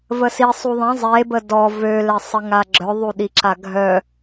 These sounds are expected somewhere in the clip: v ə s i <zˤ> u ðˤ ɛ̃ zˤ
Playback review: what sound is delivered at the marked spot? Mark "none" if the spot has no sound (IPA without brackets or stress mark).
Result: sˤ